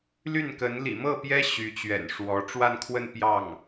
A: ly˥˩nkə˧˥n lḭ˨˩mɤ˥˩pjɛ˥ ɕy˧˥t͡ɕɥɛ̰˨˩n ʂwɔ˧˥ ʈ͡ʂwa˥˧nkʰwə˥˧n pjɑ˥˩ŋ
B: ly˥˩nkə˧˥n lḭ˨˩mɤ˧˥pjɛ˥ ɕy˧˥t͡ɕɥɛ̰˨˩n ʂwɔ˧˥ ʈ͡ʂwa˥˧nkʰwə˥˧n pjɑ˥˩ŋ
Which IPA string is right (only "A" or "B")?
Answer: A